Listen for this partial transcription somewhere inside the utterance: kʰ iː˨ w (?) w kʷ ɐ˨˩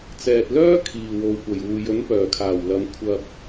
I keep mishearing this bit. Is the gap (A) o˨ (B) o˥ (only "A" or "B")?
A